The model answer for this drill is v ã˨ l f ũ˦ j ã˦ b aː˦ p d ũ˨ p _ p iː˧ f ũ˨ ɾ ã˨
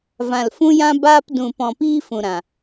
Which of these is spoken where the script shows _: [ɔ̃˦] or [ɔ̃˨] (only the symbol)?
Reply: ɔ̃˨